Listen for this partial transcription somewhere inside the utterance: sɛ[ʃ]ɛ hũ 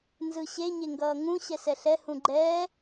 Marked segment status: incorrect: ɬ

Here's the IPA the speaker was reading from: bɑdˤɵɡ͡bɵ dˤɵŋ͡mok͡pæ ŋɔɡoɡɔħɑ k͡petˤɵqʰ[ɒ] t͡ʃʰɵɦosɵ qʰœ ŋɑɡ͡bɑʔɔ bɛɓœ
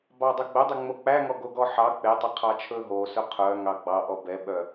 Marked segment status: incorrect: ɑ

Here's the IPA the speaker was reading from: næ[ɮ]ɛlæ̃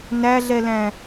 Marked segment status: correct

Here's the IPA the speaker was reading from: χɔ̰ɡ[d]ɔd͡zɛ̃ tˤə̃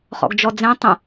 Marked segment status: incorrect: d͡ʒ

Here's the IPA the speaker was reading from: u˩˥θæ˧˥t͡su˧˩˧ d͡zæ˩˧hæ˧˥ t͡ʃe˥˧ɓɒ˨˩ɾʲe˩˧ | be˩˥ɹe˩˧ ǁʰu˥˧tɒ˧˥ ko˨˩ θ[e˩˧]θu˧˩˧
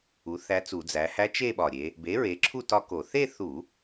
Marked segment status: incorrect: e˥˧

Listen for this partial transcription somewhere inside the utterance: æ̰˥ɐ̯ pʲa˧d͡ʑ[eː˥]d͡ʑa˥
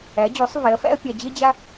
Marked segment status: incorrect: e˥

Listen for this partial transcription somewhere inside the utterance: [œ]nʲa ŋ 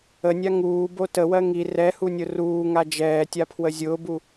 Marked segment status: incorrect: ə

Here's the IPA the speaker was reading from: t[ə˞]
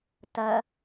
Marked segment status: incorrect: ɐ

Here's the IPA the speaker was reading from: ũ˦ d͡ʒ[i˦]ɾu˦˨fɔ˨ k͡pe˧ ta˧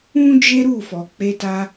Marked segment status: incorrect: e˦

